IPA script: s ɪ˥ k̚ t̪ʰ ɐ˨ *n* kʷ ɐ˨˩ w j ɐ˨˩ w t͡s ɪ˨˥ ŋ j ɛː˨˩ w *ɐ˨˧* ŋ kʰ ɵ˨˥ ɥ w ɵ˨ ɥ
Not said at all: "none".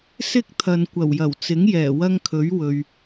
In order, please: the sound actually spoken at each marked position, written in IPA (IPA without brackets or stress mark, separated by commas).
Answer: n, ɐ˥